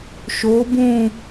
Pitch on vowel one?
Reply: rising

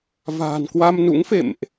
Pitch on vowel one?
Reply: low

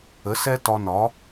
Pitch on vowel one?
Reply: rising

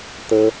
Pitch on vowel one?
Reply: high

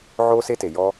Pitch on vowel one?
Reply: high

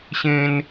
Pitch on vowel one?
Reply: high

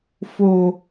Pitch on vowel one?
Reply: low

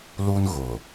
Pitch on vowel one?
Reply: high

